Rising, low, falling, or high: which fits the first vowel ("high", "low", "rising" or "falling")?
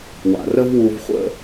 low